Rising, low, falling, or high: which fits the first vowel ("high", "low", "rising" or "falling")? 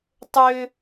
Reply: high